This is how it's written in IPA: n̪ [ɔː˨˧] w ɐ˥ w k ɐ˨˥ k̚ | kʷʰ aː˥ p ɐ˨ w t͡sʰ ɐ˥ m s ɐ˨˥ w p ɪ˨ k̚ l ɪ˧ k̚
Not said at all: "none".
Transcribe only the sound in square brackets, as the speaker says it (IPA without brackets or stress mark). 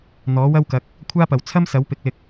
ɔː˨˥